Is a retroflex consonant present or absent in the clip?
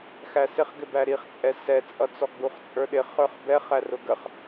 absent